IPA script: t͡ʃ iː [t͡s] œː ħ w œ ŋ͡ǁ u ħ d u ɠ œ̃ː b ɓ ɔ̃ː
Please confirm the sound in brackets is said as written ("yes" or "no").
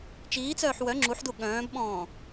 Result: yes